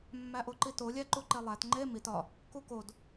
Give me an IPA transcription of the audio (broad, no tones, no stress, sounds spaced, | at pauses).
mː æ ʔ o ǃ i t o lʲ æ ǃ u ǃ e lˠ æ t ŋ͡ǃ e m i t ɒ | k u k o d